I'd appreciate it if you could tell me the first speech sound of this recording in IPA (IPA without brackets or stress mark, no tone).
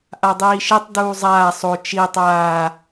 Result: ʔ